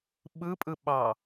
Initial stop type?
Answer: implosive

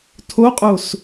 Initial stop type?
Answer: aspirated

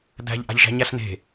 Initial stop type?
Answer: plain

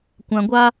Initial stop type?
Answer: plain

